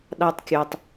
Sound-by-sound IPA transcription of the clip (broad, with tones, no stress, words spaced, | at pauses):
ɗɑ˧tˤkʲo˨tˤ